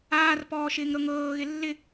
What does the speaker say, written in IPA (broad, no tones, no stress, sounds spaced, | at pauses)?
aː r p ɔː ʃ ɪː ŋ ɾ ɤ ŋ ɤː ɣ ɪ lː ɪ